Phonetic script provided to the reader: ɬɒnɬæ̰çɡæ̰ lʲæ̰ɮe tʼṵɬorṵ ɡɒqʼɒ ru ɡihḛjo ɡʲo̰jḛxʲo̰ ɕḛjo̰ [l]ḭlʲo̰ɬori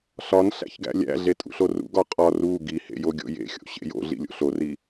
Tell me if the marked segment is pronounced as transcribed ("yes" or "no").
no